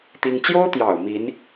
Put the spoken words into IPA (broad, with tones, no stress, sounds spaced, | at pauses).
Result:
t̪ i˥ ŋ t͡ɕ j o˥ ʊ̯ t̪ j ɑ˨˩ ʊ̯ m i˧˥ n